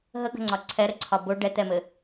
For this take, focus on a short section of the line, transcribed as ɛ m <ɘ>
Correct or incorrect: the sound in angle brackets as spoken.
correct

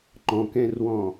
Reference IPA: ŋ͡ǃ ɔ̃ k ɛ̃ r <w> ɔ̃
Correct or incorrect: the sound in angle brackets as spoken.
correct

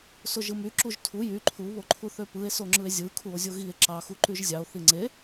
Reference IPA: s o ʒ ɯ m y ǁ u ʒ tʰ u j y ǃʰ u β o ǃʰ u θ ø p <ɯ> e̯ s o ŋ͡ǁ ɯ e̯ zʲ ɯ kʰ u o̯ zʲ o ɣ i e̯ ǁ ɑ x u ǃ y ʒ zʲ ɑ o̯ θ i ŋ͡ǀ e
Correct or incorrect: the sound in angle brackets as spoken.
correct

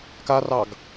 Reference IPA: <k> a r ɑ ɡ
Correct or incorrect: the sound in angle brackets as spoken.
correct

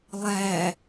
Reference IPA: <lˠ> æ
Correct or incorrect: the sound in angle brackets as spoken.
correct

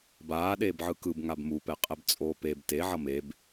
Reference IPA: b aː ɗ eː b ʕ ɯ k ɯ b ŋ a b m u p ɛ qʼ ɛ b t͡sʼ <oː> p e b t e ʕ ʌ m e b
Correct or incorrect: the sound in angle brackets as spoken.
correct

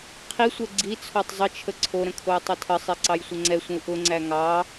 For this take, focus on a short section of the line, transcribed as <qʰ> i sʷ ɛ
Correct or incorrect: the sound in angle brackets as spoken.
correct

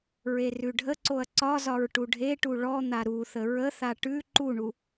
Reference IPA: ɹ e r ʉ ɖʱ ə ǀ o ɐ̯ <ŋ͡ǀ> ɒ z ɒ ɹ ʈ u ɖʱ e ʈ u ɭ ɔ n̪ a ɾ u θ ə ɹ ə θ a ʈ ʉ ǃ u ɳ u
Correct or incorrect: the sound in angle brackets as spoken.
incorrect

